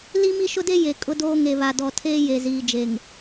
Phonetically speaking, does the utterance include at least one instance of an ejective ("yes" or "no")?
yes